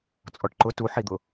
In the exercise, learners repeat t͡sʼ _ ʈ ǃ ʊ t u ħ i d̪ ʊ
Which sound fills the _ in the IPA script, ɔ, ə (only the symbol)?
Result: ɔ